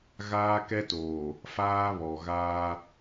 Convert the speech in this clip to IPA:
ɣ aː˦ k ɛ˦ t oː˨ | f aː˦ β ɔ˨ ɣ aː˦

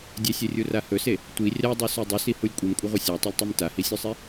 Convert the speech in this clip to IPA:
dʲ e sʲ e rʲ u r a h ɵ s e | tʷ i rʲ a dˤ u s o dˤ ɵ s i h u lʲ kʷʼ i m kʷʼ ɐ ʁʷ i sʲ a tˤ ɐ lʲ tˤ ʉ m t a h i sʲ ʉ sˤ e

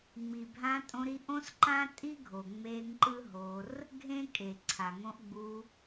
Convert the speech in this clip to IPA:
ŋ͡m i˨ bʱ ã˧ tʼ õ˧ ɾ i˧ ʔ õ˦ s ǃ ã˦ tʼ i˦ ɡʱ o˨ ŋ͡m e˧ ŋ ǃ ɯ˦ ɦ o˧ r | ɡʱ ẽ˦ kʼ e˨ ǀʰ a˨ ŋ õ˧ ʔ ɡ͡b u˧

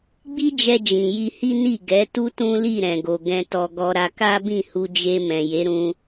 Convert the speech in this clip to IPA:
ɡ͡b i˦ d͡ʒ ɛ˧ d͡ʒ ĩ˨ j i˧ h i˦ n i˦˨ ɡ ɛ˨˦ t u˦ t ũ˦ l i˦˨ ɾ ɛ̃˨ ɡ o˨ ɡ ɛ̃˧ t ɔ˧ ɡ ɔ˧ ɾ a˧ k a˦ b ĩ˦˨ h u˧ d͡ʒ e˧ m ɛ̃˨ j e˨˦ ɾ ũ˧

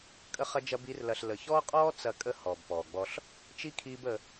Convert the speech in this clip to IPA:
kʼ ə˦ χ ɐ˦ d͡ʒ ɐ˦ b i˦ r l ɐ˧ ɬ l ə˨ ç ɔː˦ qʼ ɔː˦ t͡s ɐ˧ kʼ ə˦ h ɔː˨ b p ɔː˨ ɡ͡b ɔ˧ ɬ | t͡ʃ i˦ kʰ iː˦ b ə˧

